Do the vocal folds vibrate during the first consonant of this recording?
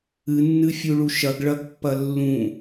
yes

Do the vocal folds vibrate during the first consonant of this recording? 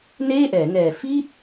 yes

